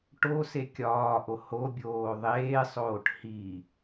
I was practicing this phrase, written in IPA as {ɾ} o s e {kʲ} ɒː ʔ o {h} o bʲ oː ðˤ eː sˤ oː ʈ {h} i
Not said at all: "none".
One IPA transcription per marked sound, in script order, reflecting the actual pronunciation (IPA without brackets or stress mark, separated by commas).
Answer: ʈ, kʲ, h, h